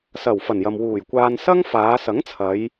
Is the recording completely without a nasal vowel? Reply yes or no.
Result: yes